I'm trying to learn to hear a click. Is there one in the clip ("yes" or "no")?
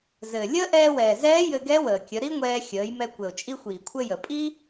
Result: no